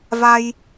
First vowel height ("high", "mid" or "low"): low